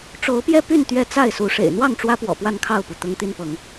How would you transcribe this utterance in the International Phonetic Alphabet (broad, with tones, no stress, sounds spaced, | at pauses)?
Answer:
ʈ͡ʂ o˨˦ ʊ̯ p j ɛ˥˨ p y˥˨ n t̪ ɥ ɛ˦ t͡s a˥˨ ɪ̯ s u˨˦ ʂ ḛ˨˩ ɪ̯ n̪ w ɑ˥˨ ŋ ʈ͡ʂ w ä˦ p w ɔ̰˨˩ p w a˥˨ n kʰ ɑ˥˨ ʊ̯ p u˩ t̪ ʊ˦ ŋ t̪ i˦ n p ɤ˨˦ ŋ